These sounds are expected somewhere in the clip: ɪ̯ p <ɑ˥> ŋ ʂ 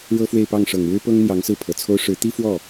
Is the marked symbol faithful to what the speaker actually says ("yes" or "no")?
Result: no